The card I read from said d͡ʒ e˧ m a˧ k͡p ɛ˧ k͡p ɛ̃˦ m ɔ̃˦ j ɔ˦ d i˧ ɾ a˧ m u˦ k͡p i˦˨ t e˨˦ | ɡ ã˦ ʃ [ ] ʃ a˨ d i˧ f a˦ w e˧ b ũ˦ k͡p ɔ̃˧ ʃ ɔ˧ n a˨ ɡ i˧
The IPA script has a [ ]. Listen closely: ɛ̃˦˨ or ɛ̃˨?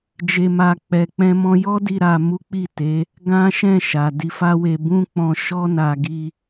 ɛ̃˦˨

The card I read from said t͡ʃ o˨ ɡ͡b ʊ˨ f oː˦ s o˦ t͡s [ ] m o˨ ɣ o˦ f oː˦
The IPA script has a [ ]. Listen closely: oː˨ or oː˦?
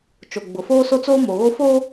oː˦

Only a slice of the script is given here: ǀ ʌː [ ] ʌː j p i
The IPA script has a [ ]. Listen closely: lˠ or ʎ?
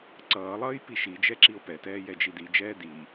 lˠ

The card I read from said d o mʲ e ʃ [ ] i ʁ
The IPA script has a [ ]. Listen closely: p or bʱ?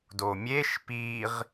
p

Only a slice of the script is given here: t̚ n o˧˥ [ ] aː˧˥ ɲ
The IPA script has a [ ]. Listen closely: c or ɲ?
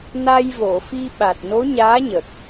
ɲ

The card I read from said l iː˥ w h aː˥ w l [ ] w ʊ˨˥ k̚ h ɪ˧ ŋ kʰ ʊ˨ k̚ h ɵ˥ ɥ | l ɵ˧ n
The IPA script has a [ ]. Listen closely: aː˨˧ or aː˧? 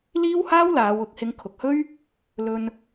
aː˨˧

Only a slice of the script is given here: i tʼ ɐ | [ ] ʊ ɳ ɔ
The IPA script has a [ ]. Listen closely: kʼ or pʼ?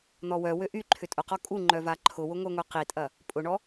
pʼ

